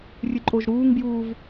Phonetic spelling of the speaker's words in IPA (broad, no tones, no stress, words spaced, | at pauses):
rʲɨǃʼoʒɾuːŋbjuːv